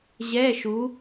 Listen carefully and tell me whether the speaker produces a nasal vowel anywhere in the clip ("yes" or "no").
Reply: no